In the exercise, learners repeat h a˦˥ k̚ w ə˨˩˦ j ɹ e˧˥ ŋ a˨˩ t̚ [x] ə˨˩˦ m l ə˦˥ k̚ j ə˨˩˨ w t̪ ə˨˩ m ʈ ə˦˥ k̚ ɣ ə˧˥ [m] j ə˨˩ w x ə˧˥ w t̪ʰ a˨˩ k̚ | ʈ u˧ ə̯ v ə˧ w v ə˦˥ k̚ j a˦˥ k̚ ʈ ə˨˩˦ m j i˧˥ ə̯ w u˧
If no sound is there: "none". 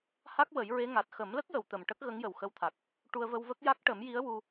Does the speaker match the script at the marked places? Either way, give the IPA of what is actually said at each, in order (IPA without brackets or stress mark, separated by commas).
x, ŋ